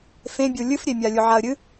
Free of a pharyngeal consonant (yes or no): no